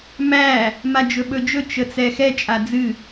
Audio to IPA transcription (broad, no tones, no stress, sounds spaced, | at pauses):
m æ | m a d͡ʒ ɵ ɓ ɵ d͡ʒ ɵ t͡ʃ ə t͡s ɛ x ɛ t͡ʃʼ a d͡z ɨ